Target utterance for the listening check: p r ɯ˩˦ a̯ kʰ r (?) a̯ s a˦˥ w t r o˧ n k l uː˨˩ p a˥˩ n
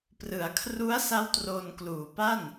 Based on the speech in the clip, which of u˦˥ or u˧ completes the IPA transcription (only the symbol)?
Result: u˦˥